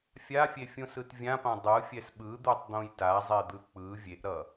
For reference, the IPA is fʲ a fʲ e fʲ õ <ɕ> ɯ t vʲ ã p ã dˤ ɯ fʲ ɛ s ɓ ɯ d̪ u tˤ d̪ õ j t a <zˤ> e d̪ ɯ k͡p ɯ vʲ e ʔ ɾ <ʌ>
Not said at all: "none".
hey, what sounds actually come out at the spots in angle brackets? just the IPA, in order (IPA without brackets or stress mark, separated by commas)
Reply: s, zˤ, ʌ